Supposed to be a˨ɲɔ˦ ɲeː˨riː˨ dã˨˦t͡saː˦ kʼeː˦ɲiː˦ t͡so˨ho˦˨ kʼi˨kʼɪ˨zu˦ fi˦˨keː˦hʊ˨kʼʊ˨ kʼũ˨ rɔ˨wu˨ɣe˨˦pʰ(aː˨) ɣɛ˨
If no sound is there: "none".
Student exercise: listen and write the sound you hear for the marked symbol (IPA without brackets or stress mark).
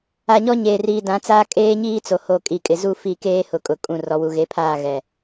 aː˦˨